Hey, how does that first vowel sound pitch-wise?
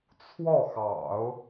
falling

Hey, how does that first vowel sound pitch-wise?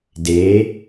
rising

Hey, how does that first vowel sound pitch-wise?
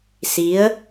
rising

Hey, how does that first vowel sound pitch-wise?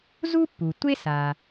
high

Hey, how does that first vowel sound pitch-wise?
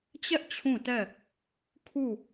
high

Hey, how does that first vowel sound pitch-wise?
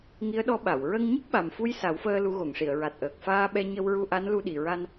rising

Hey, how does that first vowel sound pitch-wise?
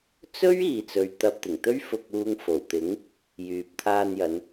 high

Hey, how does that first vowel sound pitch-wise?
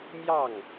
falling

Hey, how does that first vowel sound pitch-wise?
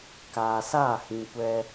low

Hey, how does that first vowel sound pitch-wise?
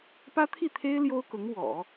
high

